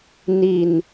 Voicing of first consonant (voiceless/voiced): voiced